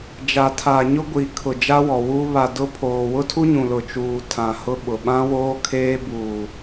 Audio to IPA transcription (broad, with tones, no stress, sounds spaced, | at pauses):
d͡ʒ a˨ tʰ aː˨ ɲ ʊ˦ ɡʷ i˨ kʰ ʊ˨ d͡ʒ a˦ w ɔ˨ w uː˦ β a˨ d ʊ˦ pʰ oː˨ w ʊ˦ tʰ u˦ ɲ ũ˨ l ʊ˨ t͡ʃ uː˨ tʰ ã˨ h ʊ˦ ɓ ʊ˨ ɓ ã˦ w oː˦ kʰ eː˦ b uː˨